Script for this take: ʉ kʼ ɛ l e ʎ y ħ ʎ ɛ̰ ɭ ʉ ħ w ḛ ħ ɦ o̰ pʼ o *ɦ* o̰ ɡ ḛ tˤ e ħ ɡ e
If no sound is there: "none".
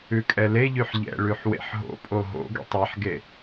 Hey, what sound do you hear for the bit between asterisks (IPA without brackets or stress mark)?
ɦ